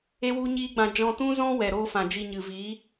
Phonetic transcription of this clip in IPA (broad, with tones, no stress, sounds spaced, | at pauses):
e˦ w u˦ ɲ iː˦ ɡ͡b ã˧ d͡ʒ ɔ̃˧ t ũ˦ z ɔ̃˦ w ɛ˨ ɾ oː˦ f ã˨ d͡ʒ i˧ ɲ ɨ˨ v iː˨˦